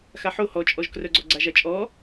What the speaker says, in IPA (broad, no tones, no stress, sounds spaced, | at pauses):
x a ħ o h ɔ t͡ʃʼ ɔ ʒ k r œ ɡ͡ǀ ɔ ɡ͡ǀ a ʒ a t͡ʃʼ ɔ